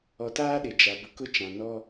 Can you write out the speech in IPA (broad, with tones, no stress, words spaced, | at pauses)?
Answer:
ɔ˨taː˦ɗɪ˨ d͡ʒa˨bʊ˨kʊ˦t͡ʃã˨ nɔ˦